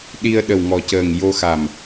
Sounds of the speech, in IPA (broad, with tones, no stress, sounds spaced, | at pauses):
ɗ i˧ ə̯ ɗ ə˨˩ w ŋ ɔ˨˩ c əː˨˩ ŋ j o˧ x a˨˩ m